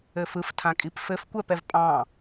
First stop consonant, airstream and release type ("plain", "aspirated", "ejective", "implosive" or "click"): aspirated